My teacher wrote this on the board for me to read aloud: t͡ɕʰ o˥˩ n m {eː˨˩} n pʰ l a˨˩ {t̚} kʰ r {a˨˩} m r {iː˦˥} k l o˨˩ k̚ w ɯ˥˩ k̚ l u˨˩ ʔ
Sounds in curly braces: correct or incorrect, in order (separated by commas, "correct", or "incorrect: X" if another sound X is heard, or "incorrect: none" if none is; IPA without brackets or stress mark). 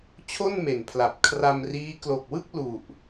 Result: incorrect: e˨˩, incorrect: p̚, incorrect: a˧, correct